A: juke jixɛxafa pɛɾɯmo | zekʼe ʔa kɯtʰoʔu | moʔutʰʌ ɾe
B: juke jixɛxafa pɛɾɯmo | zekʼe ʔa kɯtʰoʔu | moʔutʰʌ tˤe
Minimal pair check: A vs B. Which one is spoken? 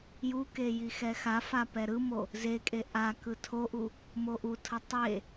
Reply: B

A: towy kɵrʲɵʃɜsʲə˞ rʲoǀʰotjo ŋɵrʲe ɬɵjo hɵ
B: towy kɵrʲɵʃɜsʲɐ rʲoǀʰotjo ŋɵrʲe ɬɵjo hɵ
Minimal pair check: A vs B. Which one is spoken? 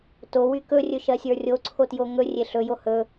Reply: A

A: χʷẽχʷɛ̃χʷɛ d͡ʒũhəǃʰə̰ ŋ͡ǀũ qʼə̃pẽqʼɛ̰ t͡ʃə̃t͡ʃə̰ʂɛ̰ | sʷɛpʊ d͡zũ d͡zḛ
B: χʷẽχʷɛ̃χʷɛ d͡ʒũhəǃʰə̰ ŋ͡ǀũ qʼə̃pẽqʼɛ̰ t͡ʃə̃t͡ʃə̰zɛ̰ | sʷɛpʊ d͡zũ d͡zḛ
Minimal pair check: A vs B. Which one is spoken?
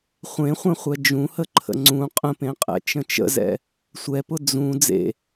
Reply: B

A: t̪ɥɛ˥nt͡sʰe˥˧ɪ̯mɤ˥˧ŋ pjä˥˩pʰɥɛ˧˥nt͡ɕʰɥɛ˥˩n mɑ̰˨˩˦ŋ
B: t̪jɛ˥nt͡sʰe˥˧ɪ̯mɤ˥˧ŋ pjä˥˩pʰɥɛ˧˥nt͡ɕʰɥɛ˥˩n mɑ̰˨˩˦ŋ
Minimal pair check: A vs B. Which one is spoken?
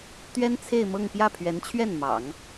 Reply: A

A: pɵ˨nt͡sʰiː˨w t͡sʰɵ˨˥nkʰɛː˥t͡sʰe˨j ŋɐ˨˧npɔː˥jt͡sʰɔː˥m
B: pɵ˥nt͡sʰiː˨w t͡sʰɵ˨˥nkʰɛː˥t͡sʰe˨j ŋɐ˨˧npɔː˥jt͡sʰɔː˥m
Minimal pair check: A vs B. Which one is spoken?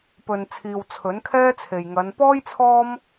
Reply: A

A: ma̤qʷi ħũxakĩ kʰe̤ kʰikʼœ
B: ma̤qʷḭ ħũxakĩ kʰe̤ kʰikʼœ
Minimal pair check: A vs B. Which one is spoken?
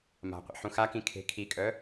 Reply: B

